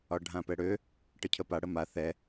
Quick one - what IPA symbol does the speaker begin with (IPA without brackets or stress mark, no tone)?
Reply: ɒ